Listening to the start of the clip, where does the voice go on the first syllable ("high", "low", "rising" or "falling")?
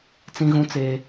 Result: high